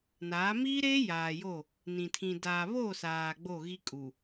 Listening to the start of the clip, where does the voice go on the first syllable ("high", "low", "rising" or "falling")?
rising